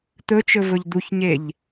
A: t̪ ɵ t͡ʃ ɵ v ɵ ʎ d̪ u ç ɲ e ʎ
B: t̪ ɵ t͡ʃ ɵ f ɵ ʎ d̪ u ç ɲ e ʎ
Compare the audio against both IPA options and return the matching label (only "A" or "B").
A